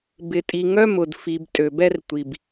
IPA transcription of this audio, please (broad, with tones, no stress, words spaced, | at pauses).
bɪ˨tʼi˨ŋœ˦mʊ˨d fi˨b tʼø˨bɛ˦rtʷi˨b